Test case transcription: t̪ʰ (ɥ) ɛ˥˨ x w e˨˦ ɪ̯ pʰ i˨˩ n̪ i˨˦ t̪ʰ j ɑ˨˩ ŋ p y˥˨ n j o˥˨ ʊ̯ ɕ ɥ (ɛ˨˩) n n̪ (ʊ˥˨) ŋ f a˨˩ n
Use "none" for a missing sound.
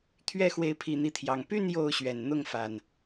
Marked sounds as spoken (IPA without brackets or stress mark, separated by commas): ɥ, ɛ˨˩, ʊ˥˨